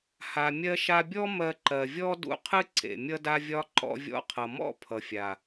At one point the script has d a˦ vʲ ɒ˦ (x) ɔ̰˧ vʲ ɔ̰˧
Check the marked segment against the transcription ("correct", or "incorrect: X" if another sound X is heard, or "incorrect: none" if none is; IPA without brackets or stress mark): incorrect: ǃ